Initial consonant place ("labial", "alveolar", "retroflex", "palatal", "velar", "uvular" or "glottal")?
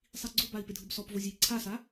alveolar